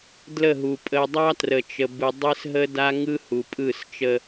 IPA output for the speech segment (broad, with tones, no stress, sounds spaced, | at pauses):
d l ə˦˨ ɦ u˨ pʼ ə˨ dˤ ɑ˦ t r ə˨ t͡ʃ ə˨ b ɯ˨ dˤ ɘ˦ s ɦ ə˦ d a˦ ŋ ɯ˦ h u˨ pʼ ɯ˦˨ s t͡ʃ ə˦